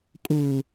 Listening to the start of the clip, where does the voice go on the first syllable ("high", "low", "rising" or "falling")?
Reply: low